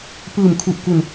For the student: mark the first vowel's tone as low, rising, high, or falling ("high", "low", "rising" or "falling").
low